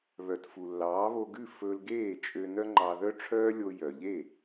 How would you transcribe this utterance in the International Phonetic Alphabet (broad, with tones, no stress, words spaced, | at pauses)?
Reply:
βœ˩t fu˩lːɑː˩˥βo˧ɡʉ˥˩ fɵ˧l ɡeː˥˩t͡ʃʼø˧ nœ˥ ŋ͡ǃɑ˧ ðœ˥ʈ͡ʂʰœː˥ lʲo˧jœ˩ʎe˥˩